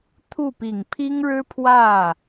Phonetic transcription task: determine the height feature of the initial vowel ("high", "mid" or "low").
high